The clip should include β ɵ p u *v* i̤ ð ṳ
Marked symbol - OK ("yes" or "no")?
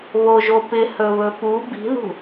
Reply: no